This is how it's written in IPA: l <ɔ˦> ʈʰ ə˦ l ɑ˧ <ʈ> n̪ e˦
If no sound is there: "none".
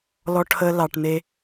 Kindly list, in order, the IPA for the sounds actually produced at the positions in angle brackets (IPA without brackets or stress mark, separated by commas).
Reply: ɔ˦, ʈ